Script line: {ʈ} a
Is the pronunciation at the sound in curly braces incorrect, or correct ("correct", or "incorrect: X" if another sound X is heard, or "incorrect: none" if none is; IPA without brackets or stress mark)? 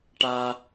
correct